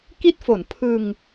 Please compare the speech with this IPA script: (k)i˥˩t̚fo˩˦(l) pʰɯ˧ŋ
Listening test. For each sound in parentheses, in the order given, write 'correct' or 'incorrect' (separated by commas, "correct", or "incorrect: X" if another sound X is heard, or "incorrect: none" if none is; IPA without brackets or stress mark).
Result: correct, incorrect: n